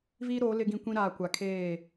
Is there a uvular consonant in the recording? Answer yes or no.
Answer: no